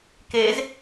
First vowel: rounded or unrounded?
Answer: unrounded